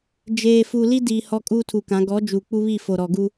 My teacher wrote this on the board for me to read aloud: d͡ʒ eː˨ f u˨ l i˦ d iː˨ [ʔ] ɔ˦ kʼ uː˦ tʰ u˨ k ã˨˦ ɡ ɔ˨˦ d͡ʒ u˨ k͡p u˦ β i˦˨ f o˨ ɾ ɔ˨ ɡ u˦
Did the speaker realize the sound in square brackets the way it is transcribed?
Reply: no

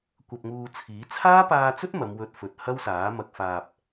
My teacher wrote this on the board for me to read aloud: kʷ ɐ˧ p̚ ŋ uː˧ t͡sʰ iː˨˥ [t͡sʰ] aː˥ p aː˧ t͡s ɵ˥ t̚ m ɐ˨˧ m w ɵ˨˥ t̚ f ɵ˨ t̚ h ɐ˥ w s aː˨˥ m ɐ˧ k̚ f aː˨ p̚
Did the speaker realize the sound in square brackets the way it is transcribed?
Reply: yes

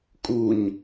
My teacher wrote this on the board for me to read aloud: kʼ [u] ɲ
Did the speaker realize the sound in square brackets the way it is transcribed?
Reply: yes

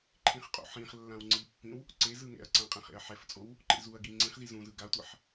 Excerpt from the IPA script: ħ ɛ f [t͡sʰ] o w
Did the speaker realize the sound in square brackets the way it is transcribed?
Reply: no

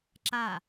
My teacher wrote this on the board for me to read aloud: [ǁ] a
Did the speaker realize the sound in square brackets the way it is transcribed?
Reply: yes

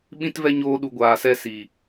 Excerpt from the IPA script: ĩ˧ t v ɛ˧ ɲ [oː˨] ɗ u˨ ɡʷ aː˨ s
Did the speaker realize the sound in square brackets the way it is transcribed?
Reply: no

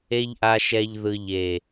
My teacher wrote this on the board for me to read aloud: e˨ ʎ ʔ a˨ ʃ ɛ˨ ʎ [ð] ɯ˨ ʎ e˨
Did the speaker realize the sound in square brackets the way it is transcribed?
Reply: yes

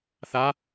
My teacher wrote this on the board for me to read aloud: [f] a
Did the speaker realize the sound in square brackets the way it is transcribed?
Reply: no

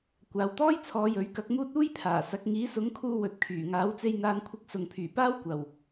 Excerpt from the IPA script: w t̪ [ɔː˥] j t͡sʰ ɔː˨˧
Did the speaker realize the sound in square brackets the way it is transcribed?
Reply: yes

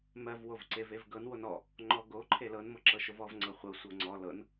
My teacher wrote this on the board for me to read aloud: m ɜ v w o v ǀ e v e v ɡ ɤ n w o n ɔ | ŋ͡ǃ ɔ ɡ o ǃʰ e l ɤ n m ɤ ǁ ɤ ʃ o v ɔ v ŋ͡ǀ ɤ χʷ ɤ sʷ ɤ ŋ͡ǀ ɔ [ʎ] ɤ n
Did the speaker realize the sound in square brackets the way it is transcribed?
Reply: no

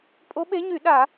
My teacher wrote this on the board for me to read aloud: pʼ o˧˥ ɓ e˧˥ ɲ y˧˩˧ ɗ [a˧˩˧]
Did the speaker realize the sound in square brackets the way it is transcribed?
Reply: yes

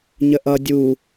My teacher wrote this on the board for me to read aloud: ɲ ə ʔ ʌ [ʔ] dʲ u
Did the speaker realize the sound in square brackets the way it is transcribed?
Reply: no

